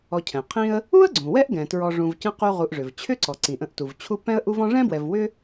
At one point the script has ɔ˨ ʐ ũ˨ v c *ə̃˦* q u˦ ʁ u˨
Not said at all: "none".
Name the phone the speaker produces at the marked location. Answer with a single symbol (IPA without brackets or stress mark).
ə̃˦